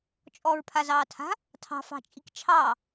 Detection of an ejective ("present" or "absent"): present